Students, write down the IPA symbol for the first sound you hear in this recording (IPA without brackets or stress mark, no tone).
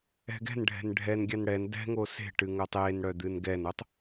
ɛ̤